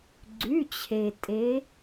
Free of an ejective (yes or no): no